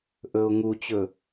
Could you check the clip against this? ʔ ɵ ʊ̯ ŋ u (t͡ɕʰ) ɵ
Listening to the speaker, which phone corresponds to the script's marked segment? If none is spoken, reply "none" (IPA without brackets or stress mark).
t͡ɕ